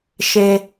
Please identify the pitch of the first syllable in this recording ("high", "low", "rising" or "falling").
low